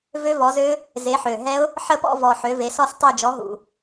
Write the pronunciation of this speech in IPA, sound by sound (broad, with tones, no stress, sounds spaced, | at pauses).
v ø˦˥ v ɔ˨˦ z ø˦˥ | z e˨˦ ħ ø˨˩ ɦ ɛ˦˥ ʊ̯ | ħ ə˥˧ p ɔ̰˥˧ v ɔ˨˩ ħ ø˨˦ v e˨˦ s ɔ˥˧ s tˤ e˥˧ d͡ʒ ɔ˨˦ ɦ ṵ˨˩